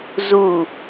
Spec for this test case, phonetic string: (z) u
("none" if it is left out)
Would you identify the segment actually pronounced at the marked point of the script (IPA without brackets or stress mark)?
z